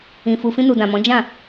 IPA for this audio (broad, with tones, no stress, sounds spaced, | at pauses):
ĩ˨ f u˨ f ĩ˧ n u˨ d ã˨ m ɔ̃˨˦ d͡ʒ ã˦˨